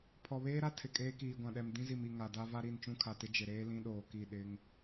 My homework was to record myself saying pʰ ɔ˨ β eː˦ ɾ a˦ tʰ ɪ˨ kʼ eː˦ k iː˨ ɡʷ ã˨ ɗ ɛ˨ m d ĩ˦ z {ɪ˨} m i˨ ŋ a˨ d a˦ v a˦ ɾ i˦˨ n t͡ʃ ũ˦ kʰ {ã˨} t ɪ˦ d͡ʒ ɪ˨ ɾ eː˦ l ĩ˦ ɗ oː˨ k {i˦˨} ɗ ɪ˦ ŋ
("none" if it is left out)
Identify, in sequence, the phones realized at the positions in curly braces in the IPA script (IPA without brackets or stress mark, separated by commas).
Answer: i˨, a˨, i˦˨